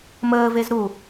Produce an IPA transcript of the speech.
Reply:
m əː v e z ɾ u

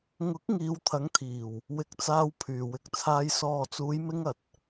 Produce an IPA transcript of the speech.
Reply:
ŋ ʊ˨˥ k̚ ŋ iː˨˧ w t̪ʰ ɐ˨˥ ŋ t̪ʰ iː˨˩ w | w ɪ˧ k̚ t͡s aː˧ w pʰ yː˨˩ w ɪ˧ k̚ t͡sʰ aː˧ j s ɔː˨ t͡s uː˨˧ j m ɪ˧ ŋ ɐ˨ t̚

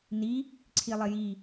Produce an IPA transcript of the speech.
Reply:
n i | ǀʰ i lˠ ɪ j i

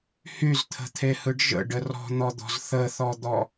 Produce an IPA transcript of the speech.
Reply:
h y z t̪ʰ ə̤ t̪ʰ e h ɯ ɖ ʒ ə̰ ɖ ə r ɔ̤ n̪ ɔ d̪ ɔ̤ z θ ə θ ɔ d̪ ɔ

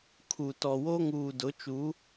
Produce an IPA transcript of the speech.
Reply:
kʰ u˨ t ɔ˨ w o˦ ŋ uː˨ d ʊ˨˦ t͡ʃ u˨˦

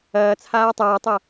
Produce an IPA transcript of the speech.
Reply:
ɐː t͡sʰ aː tˤ ʌː tˤ ɤ

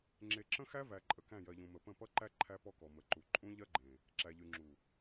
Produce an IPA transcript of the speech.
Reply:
ŋ͡ǁ e˨ ǁ ə̃˦ x æ˦ v æ˨ ǃʼ ə˨ k æ̃˦˨ j ɜ˨ ʎ ũ˨ m ə˨ p ə̃˦˨ p ʌ˦ ǃ æ˦ ǃʰ æ˦ p ɔ˦ k ɔ˨ m ə˨ ǃ u˨ ǃʼ ũ˦ ʎ ɜ˦ ɡ͡ǃ ẽ˨ | ǁ æ˨ ʎ y˨ ŋ͡ǁ u˨

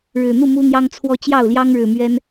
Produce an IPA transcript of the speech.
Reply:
ɻ ɻ̩˨˩ n̪ u˥˨ m u˦ n̪ j ɑ˦ ŋ t͡sʰ w ɔ˦ t͡ɕ j ɑ˥˨ ʊ̯ l j ɑ˦ ŋ ɻ ɻ̩˨˩ m ɥ ɛ˦ n

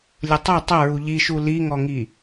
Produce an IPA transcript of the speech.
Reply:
lʲ ə tˤ ɐ tˤ ɐ ɹ u ʎ i ʃ u l i ŋ ɔ ŋ i

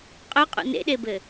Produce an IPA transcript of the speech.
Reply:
qʼ œ qʼ ṵ n ḛ ɗ e b ɘ

